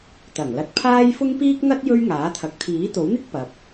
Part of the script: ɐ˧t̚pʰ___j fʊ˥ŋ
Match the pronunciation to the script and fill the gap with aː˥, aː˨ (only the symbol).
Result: aː˥